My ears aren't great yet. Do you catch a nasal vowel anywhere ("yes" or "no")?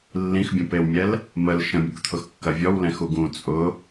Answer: yes